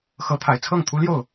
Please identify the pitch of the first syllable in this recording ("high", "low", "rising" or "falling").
rising